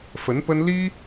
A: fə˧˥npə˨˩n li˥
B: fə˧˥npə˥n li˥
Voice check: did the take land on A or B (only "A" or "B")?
B